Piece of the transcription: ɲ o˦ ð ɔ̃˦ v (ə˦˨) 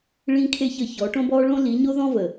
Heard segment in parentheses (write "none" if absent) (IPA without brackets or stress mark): ə˨